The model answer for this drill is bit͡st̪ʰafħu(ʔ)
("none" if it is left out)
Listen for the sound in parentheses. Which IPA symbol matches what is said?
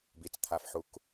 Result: k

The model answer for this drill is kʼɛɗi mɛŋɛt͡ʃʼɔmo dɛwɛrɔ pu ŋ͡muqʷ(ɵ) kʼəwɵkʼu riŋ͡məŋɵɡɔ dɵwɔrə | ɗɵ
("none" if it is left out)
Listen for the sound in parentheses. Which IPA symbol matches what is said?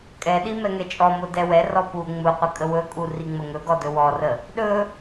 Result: ə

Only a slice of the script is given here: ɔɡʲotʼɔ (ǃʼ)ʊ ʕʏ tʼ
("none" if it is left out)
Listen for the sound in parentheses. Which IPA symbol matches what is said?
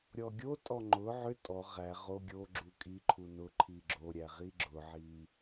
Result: ŋ͡ǃ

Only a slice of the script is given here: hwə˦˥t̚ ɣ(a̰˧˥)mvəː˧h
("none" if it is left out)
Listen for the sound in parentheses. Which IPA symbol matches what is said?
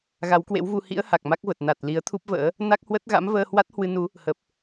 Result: a̰˧˥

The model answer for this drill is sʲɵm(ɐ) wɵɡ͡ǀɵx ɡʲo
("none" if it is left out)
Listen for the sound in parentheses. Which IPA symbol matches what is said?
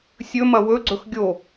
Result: ɐ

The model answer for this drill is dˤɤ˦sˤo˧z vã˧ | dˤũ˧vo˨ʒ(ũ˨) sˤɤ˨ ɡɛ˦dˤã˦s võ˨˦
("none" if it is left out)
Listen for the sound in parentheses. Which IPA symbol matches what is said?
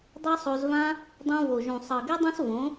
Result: ũ˨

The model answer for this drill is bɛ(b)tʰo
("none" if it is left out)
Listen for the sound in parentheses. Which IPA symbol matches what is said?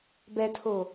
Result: none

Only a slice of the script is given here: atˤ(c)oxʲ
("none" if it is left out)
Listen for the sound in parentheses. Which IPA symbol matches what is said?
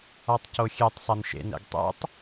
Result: c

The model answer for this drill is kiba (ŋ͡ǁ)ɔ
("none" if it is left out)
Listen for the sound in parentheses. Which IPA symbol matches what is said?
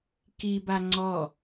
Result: ŋ͡ǀ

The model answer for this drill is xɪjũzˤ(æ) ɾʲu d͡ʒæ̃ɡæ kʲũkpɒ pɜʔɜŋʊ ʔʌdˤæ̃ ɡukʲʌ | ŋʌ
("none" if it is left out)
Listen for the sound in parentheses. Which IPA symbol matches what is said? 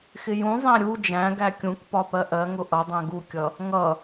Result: æ̃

